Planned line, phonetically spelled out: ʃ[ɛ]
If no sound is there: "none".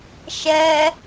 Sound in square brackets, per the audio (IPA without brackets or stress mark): ɛ